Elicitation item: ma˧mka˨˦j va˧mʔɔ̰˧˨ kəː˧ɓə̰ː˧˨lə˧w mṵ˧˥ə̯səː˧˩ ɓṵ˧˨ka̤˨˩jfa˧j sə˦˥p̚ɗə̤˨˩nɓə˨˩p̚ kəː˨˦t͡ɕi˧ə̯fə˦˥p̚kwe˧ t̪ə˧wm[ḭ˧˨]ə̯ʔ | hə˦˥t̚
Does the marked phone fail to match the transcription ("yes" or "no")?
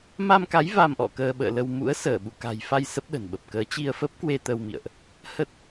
no